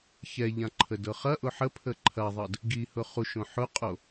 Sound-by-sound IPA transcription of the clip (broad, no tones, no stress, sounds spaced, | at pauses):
ç ɛ ʎ ã ǃʰ ə d ɤ χ ɐ ʔ ʊ ħ ə pʰ ə ǃʰ ɐ ðˤ ɤ d | ɡ i h ʊ χ u ʃ õ ħ ʊ qʼ o